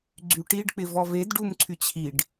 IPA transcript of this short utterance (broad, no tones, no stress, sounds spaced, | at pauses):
ɡ͡ǀ y ʈ i ɖ k͡p ɪ v ɔ v e d ɖ u m ǀʰ y t͡ɕʰ i ɖ